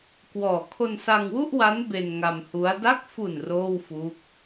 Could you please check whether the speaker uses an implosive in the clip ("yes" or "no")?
no